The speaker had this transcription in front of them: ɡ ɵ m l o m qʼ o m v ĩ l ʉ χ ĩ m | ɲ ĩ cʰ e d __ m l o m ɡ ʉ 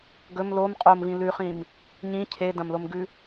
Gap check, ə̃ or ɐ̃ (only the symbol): ɐ̃